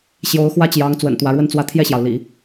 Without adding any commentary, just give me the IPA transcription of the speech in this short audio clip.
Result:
ɕ j o˧˥ ʊ̯ x w ä˥ t͡ɕ j ɑ˧˥ ŋ t͡s w ə̰˨˩ n t̪ w ä˧˥ ɻ w ə˥ n t͡s w ä˥˧ t̪ʰ j ɛ˥˩ ɕ j ɑ˩ ʊ̯ l ḭ˨˩˦

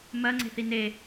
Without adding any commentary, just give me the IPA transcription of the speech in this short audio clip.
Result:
m ɜ ŋ͡ǀ e̤ θ i n e

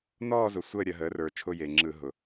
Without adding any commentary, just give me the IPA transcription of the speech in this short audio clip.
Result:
n ɔː˥˧ z ʊ˩˥ sʷ əː˥˧ ɾʲ ɐ˧˩˧ ɦ əː˩˥ r ə˞˩ t͡ʃʰ ʊ˥˧ j eː˩ ŋ͡ǁ ɯ˧˩˧ ɦ ʊ˩

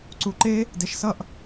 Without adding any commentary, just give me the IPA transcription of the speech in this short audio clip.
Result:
ǀ u ǃ e | d e ʃ s ʌ ʔ

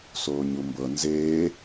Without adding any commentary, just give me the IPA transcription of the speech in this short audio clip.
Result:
s oː ɲ u m b ɤ n z eː

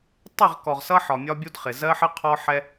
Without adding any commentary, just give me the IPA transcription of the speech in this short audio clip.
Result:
tˤ ɪ˦˨ ʁ k ɔ˨ ʁ s ʌ˦ ħ ɒ˨ mʲ ɒ˦ bʲ u˦ d χ ɪ˨ z ɜ˦ ħ ə˦ qʰ ɔ˦ ħ ɛ˦

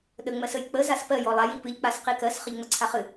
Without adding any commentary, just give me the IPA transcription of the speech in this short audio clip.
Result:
ɗ ə ŋ͡m ɜ s ə j k͡p ə z a s p ɜ j ɔ lˠ a j i p ɨ ʎ k͡p a s q i k ɜ s χ ə ʎ ŋ͡m ə ǀʰ a χ ɨ

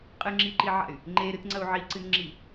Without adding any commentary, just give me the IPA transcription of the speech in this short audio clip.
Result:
qʼ ɨ ŋ͡ǁ i ǃ i ʕ a̰ y̯ | ŋ͡ǃ e ɾ ɨ t ŋ͡ǀ ɐ u̯ ʕ i ǀ ɨ n ŋ͡ǁ i

